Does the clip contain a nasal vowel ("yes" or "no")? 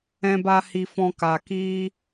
yes